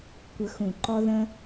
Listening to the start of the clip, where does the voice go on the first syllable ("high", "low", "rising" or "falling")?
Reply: rising